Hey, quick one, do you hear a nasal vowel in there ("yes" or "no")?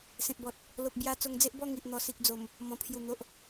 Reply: yes